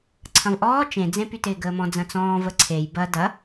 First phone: ǀʰ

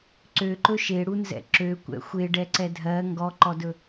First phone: ǀ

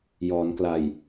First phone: j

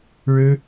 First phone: ɻ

